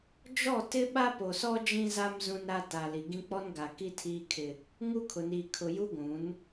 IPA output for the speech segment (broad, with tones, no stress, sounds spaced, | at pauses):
d͡ʒ ɔ˦˨ t ɪ˦ ɓ a˦ p o˨ s ɔ˦ d͡ʒ ĩ˦ z a˦ m z ũ˦ n ɾ a˦ t a˨ l i˨ ɡ ĩ˦ k͡p ɔ˦ n ɡ a˨ k i˦ tʰ iː˦ kʰ ɪ˦ | ŋ u˦ kʰ ʊ˨ n iː˨ kʰ ʊ˨ j u˦ ɡʷ ũ˨˦ n